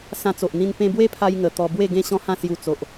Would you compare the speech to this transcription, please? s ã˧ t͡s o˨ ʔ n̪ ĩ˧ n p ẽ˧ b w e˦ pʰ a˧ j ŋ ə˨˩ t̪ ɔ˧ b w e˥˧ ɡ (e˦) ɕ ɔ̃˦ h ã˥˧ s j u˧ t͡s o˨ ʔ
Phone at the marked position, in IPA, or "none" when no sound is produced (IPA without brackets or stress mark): ẽ˦